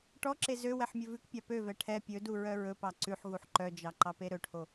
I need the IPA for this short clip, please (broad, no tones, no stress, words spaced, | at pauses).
ʈɔǁe zø wɛħmʲɵvʉkpʲɑ pøvɛ ʈʰɛ pʲɵdu ɹœɹɵpɑ ǀʉħɣuħ ǃœd͡ʒɑ ǃɑpeɾɵʈʰo